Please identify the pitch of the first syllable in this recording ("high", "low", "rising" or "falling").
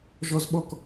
high